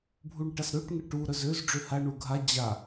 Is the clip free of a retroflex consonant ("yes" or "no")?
no